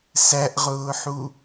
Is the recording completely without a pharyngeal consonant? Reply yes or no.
no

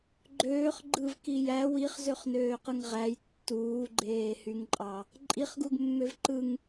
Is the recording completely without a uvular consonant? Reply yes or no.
no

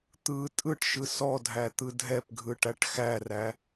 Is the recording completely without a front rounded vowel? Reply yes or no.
yes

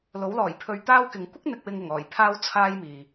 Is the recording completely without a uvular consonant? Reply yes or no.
yes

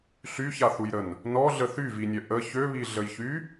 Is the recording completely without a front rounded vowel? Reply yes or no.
no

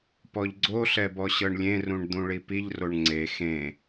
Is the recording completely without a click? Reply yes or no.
no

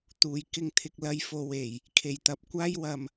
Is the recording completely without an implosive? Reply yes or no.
yes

